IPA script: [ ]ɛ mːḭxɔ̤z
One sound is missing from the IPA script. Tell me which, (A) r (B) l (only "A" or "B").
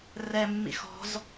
A